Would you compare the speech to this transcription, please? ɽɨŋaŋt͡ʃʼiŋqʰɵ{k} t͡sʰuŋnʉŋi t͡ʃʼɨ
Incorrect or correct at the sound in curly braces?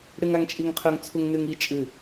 incorrect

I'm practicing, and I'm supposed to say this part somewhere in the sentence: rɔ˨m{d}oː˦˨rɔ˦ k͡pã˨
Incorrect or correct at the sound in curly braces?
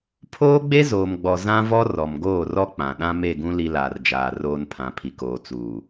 incorrect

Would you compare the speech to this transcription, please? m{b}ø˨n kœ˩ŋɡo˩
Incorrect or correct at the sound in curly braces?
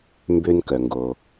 correct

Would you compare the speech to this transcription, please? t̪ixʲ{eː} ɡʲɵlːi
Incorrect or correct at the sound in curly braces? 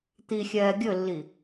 incorrect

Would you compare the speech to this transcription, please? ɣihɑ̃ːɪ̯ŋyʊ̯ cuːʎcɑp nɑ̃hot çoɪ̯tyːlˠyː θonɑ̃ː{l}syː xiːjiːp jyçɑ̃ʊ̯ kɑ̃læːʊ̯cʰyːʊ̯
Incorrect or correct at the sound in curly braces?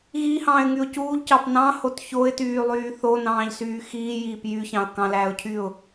incorrect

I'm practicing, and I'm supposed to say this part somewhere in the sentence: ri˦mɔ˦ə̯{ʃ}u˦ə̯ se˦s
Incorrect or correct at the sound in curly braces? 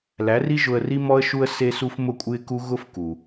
correct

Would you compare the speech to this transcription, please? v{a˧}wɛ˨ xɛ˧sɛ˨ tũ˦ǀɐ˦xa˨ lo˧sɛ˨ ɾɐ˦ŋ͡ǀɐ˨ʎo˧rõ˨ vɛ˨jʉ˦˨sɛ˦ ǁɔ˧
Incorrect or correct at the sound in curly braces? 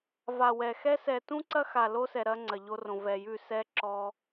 incorrect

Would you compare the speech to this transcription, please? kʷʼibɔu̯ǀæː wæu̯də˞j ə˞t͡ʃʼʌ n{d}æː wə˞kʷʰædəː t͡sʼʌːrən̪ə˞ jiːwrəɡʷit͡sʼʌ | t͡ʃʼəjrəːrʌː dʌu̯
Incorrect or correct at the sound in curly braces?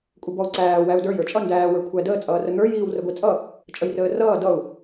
correct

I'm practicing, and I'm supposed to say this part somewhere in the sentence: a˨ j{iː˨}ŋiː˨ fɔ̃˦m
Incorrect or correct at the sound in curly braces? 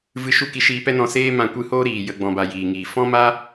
correct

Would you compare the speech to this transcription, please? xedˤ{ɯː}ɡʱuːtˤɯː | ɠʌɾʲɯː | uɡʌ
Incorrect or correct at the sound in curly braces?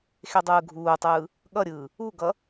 correct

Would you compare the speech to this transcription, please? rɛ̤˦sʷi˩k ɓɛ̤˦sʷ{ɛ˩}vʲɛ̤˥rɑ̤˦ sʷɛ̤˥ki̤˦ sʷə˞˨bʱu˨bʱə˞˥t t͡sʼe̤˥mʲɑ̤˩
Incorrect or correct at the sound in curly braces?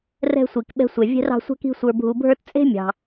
correct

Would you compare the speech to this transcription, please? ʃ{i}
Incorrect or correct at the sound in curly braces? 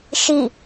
correct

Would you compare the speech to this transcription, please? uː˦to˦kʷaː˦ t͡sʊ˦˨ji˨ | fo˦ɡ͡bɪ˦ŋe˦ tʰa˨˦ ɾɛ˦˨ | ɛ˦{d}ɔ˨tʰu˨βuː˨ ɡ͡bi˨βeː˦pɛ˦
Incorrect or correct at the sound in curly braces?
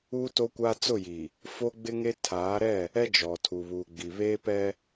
incorrect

